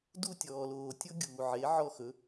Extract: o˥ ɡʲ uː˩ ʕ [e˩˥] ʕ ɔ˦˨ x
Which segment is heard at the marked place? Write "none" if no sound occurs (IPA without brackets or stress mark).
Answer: e˩˥